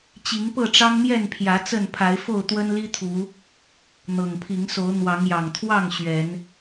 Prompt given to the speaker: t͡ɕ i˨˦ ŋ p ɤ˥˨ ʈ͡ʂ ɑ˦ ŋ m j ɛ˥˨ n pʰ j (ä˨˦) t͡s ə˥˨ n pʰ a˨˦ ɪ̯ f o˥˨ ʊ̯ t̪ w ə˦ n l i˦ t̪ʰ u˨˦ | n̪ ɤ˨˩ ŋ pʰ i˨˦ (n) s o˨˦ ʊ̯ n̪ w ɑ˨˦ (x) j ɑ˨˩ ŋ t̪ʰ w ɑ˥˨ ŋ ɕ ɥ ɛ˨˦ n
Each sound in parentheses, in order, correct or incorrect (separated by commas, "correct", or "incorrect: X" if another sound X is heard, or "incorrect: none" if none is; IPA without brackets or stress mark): correct, incorrect: ŋ, incorrect: ŋ